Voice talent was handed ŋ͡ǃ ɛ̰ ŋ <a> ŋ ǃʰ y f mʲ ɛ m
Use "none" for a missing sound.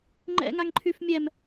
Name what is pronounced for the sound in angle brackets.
a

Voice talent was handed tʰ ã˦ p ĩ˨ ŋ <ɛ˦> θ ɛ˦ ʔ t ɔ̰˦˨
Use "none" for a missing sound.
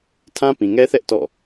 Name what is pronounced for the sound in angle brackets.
ɛ˦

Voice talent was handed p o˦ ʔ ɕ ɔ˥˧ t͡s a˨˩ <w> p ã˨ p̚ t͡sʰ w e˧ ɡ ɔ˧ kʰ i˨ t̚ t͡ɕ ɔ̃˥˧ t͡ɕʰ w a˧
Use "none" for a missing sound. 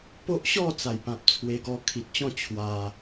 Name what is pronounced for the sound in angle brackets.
j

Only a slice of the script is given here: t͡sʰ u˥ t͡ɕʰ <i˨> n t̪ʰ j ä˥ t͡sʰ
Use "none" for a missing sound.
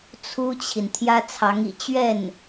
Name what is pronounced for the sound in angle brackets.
i˨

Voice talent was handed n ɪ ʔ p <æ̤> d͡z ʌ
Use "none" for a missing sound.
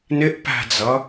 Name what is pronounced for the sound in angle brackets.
æ̤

